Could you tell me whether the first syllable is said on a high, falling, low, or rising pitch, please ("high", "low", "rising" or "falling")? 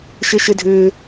high